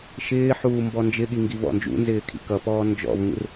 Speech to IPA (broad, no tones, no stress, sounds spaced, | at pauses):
ʃ ɪː ħ uː m b ɔ n d͡ʒ ɪ ɠ i ŋ ɡ i v ɔ̰ n d͡ʒ ṵ n z ɪː kʰ ḭ k ʌ p ɔː n d͡ʒ ɔ̰ v ŋ ṵ r